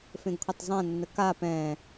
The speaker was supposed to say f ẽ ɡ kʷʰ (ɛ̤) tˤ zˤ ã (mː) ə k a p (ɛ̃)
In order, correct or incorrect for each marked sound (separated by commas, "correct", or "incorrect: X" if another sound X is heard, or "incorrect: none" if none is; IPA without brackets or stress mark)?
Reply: incorrect: ɛ, incorrect: nː, correct